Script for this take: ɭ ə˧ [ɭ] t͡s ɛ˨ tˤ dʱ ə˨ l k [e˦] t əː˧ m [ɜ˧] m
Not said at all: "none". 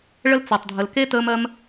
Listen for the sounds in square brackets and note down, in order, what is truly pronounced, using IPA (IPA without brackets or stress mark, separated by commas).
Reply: l, e˦, ɜ˧